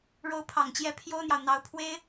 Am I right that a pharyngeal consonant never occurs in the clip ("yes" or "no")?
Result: yes